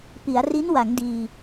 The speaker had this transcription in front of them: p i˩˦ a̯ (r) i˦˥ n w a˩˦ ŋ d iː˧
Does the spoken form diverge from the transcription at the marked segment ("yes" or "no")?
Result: no